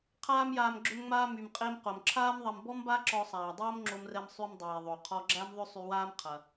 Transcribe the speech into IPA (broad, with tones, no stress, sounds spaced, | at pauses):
qʰ aː˥ m j aː˧ m ɡ͡ǁ ʏ˧ m ŋ͡m aː˧ m y˩ m qʼ e˧ m q o˩ m ǁʰ aː˥ m ðˤ ɐ˧ m b ɔ˥ m b a˥ ǁ ɔ˧ sˤ aː˩ dˤ oː˥ m ŋ͡ǁ o˧ m r ɛ˧ m sˤ y˧ m dˤ eː˩ ðˤ o˩ qʰ ɔ˧ ɡ͡ǁ æ˥ m ðˤ ʏ˥ sˤ y˧ w aː˥ m qʰ ɐ˩